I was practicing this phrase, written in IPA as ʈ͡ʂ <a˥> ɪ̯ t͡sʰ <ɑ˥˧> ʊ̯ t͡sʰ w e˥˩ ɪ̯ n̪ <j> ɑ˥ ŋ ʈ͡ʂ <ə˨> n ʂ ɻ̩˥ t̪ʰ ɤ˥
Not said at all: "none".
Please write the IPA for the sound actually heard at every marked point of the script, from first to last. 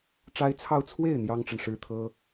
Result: a˥, ɑ˥˧, j, ə˨

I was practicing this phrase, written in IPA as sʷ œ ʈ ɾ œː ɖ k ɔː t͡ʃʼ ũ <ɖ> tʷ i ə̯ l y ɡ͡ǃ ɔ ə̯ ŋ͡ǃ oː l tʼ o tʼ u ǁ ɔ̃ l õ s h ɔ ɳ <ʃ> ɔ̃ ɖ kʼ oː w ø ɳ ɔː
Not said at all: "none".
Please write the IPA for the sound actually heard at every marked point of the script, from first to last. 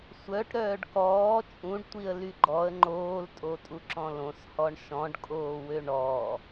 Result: ɖ, ʃ

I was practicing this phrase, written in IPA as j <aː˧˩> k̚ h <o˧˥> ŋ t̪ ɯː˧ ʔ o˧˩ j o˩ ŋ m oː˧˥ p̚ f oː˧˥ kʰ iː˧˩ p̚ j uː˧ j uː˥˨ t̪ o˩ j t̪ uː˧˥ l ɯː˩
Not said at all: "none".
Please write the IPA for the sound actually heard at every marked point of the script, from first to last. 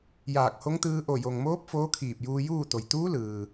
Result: aː˧˩, o˧˥

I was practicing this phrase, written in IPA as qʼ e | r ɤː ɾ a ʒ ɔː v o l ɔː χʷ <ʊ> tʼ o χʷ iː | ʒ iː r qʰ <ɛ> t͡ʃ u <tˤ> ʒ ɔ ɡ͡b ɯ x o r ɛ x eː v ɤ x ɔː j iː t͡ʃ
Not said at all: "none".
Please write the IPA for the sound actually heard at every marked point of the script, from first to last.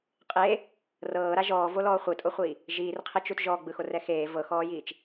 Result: ɯ, e, t

